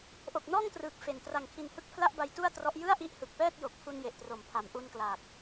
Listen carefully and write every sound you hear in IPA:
ʔo˨˩k̚nɔː˥˩ŋtrɯː˨˩k̚ fe˨˩n tra˨˩ŋkʰi˨˩nhɯ˦˥k̚ pʰla˥˩ʔba˧jtu˥˩a̯trɔ˦˥ʔ jɯ˥˩a̯ʔi˦˥ʔhɯ˨˩k̚pɛː˥˩t̚ jo˨˩k̚pʰu˧n je˨˩ʔtro˨˩mpʰa˩˦m ʔu˧nklaː˨˩k̚

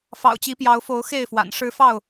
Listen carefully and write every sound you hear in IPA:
fɑ̰˨˩ʊ̯t͡ɕi˨˦pjɑ˨˦ʊ̯fo˨˦ʊ̯ xe˥˨ɪ̯fwa̰˨˩nʂɻ̩˦ fɑ˥˨ʊ̯

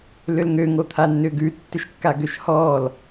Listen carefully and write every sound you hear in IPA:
lʏlŋø ŋot̪ʰanːʏːɡʉ tːʏʃkːaɡøʃhɔːl

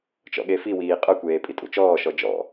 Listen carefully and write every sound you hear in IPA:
t͡ʃɔ̰ɠefiwiː qʼœkʷeː pʼitʼṵt͡ʃɔːʃɔ d͡ʒɔ̰

